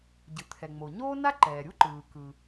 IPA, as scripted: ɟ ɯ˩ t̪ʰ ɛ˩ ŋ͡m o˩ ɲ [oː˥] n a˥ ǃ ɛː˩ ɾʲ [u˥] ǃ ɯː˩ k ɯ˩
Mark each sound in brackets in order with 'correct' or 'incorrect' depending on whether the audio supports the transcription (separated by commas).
correct, correct